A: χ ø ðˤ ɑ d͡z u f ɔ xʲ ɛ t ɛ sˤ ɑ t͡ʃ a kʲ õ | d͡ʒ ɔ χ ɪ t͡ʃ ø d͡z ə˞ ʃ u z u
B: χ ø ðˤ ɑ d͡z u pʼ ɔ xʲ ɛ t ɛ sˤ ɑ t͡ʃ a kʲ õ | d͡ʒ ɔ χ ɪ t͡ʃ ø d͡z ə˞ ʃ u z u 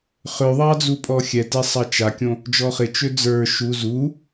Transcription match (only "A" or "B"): B